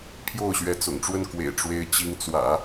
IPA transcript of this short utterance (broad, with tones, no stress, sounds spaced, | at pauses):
pʰ j o˥˩ ʊ̯ ɕ ɥ ɛ˧˥ t͡s ʊ̰˨˩ ŋ ʈ͡ʂ w ə˥˩ n k w ḛ˨˩ ɪ̯ ʈ͡ʂ w e˧˥ ɪ̯ t͡ɕ i˧˥ ŋ t͡s w ä̰˨˩˦